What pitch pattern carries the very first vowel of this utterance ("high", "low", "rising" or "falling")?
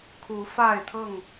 rising